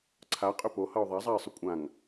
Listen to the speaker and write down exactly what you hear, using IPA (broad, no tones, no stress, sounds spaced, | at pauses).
ǀʰ a qʼ ʏ p o h ʌ ʊ̯ ðˤ a zˤ a ɪ̯ sˤ ʏ kʷʼ ã ŋ